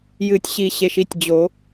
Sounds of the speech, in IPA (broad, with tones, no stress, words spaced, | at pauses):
jɨ˨˩˦tʲɕi˨˩˦ ɕe˩ʃi˥˩tʲ d͡ʑo˨˩˦